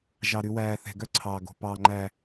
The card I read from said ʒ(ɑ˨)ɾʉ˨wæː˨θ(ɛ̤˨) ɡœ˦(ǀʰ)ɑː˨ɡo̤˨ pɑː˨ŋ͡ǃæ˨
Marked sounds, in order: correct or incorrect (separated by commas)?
correct, correct, correct